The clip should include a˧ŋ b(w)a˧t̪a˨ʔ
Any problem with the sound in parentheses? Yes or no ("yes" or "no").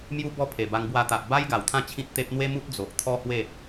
no